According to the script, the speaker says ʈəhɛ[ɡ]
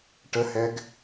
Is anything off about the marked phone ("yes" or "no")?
no